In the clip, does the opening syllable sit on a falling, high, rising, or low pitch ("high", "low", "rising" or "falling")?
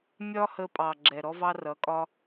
high